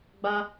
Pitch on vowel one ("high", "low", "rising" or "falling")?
high